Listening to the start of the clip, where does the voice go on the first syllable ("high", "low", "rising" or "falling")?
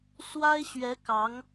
high